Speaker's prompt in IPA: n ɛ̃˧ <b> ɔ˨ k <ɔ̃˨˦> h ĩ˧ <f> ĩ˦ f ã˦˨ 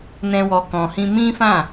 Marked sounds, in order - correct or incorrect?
incorrect: w, incorrect: ɔ̃˨, incorrect: m

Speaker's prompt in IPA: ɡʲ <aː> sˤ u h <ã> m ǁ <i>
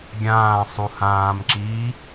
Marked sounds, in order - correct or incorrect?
incorrect: ãː, incorrect: ãː, incorrect: iː

